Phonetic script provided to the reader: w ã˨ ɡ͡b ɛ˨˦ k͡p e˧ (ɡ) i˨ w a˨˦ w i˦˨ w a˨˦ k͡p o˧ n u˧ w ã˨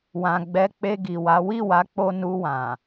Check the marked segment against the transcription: correct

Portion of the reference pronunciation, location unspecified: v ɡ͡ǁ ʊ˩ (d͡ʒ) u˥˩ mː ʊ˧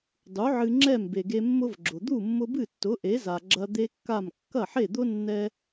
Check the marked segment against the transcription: incorrect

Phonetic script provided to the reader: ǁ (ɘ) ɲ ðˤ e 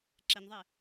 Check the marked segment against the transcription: incorrect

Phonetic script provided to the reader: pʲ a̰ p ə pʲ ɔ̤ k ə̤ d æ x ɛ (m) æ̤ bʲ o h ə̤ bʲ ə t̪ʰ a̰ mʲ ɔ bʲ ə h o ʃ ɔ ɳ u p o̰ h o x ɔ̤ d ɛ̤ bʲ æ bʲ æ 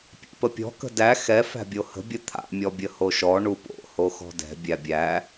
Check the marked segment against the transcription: incorrect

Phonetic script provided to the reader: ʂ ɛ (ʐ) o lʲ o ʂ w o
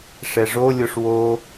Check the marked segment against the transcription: correct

